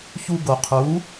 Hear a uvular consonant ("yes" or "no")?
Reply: yes